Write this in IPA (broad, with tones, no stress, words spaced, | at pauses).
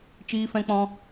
t͡ʃiː˧fɛ̃˧k͡pɔ̃˧